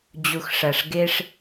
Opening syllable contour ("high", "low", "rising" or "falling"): low